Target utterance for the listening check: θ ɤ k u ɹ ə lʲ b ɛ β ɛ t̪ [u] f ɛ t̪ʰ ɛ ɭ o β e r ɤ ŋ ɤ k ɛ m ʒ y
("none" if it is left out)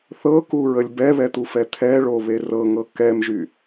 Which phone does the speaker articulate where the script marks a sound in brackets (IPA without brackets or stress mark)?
u